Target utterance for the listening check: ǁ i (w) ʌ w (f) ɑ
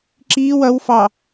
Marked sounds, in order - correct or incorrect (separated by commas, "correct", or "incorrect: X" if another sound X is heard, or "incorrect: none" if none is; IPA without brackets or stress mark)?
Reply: correct, correct